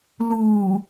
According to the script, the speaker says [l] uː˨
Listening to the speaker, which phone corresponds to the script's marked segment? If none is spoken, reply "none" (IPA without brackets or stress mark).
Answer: l